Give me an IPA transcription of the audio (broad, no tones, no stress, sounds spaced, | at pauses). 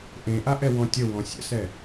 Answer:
ʔ ẽ ʔ a ʔ ɛ w ɔ̃ tʲ ə w ɔ̃ sʲ ə̰ s ɛ